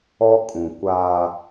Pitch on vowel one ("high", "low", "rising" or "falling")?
high